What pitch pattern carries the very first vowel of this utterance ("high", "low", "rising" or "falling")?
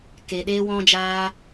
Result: low